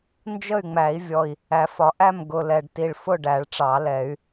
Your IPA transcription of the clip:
n d͡ʒ ə˥˨ y̯ ŋ͡m æ˨˩˦ i̯ vʲ ɔ˨˩ i̯ | æ˨˩˦ f ɒ˨˩˦ ʔ æ˥˨ m ɡ ʊ˨˩ l ɛ˨˩ ɖ t i˨˩ ɭ f ʊ˥˨ ɖ æ˨˩˦ ɭ ʈ͡ʂ ɑ˨˩˦ l ɛ˨˩˦ y̯

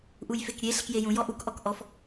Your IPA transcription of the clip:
ʔ u j f e k ɾʲ e ɬ e k j e j ũ j ɔ ʔ u k ʔ ɔ k ʔ ɔ f

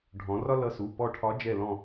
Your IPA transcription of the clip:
ɖʱ ɔ̃˩˧ r ɒ˥ l ʌ˧˥ s u˩˧˩ p ɔ˦˨ ʈʰ ɒ˧˥ d͡ʒ ɛ˦˨ l ɔ̃˦˨

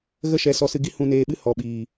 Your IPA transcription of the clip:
ɣ ə˦ ʃ ɛ˨˦ s ɔ˧ s ɨ˧ ɡ i˦ h ũ˧ n eː˧ ɓ ɨ˦ h ɔ˨ ɓ iː˨

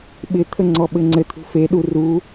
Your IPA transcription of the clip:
ɓ ɪ t̪ʰ ə ŋ͡ǀ ɔ ɓ ɘ ŋ͡ǀ ɘ t̪ʰ ṳ f e ɗ u r u

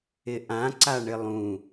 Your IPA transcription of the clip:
ɪ ʔ ã ǀ a ɳ ɪ lˠ ũ

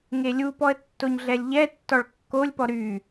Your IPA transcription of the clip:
ŋ e lʲ u p ɔ ə̯ tː o ɲ ɮ ɛ lʲ ʎ ɛ tː ɔ ɭ kː o lʲ p ɔ ɾ y

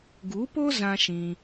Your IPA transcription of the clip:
ɡ u˨˦ p o˦ z ã˦ ʃ ĩ˧

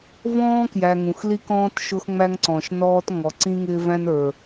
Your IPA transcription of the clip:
v ɔ̃ː˦ k j æ˨ ŋ ũ˨ x l i˦ k ɔ̃ː˦ t ʃ ʊ˦ x ŋ͡m æ˦ ŋ ǀ ɔ̃ː˨ ʃ n ɔː˦ t ŋ ɔ˨ ǀ ĩ˦ ŋ ɪː˦ v æ̃˦ n ə˞˨

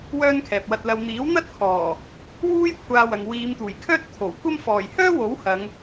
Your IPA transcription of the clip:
w œː˥ n kʰ ɛː˨ p̚ w ɐ˧ t̚ l ɐ˧ w n̪ iː˨˥ w n̪ ɐ˥ t̚ kʰ ɔː˨˩ | w uː˥ j kʷʰ aː˧ w ɐ˨ ŋ w iː˨˧ m t̪ uː˨˩ j kʰ œː˥ t̚ t̪ʰ o˨˩ w kʷ ɐ˥ m f ɔː˨˩ j h œː˥ w o˨˥ w h ɐ˨˧ ŋ

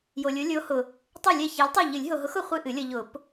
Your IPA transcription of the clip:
j o˨ lʲ o˨˥ lʲ o˨˥ h ʊ˨ | tˤ e˥˩ lʲ ɛ˥˩ ç ɛ˨˥ lʲ tˤ ɛ˥˩ ʎ ɨ˨˩˦ lʲ ɦ o˨ ɦ ʊ˨˥ x ʊ˨ χʷ ɨ˥˩ ʔ ɨ˨˩˦ lʲ ʌ˨ ʎ ʊ˨˩˦ p

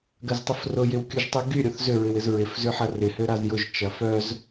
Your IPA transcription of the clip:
ɡ ɐ z tˤ ə f r ʊ j ɪ w kʲ u ʒ tˤ y ɡ y ɾʲ o θ z ʏ ɹ ɪ w ɪ z ɹ ɪ f z ʏ ħ ɐ r ɪ h ø ɾ a z j ʊ ʒ t͡ʃ ɐ f œ z

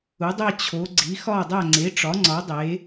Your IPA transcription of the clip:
u˩˥ dˤ e˥˨ t͡ɕʰ o˩˥ ɡ͡ǀ i˩˥ x ɒ˥˨ dˤ æ˥˨ ŋ͡ǀ e˩˥ ʈ͡ʂ ɒ˩˥ ŋ͡ǀ ɒ˩˥ dˤ e˩˥

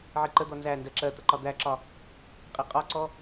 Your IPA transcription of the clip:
ʕ i ǃ ə d̪ ɔ n z æ n d ɜ ǁ ɜ t̪ ə ǃ ɒ d̪ æ ǁ ɒ | qʼ i qʼ ɒ ǀ ɔ

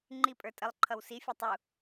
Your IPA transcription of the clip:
ŋ͡ǃ i pʼ ə˞ tʼ ə lˠ ǃʰ ʌ w s i fʲ ɛ tˤ u

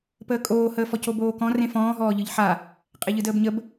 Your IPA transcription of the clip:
p əː kʼ oː h əː f ɔ c o b oː k ɔ̃ r ẽ f ɔ̃ː ɦ ɔː ʎ ɯ ʎ ħ a | qʼ e ʎ ɯ d əː b ɲ ə b

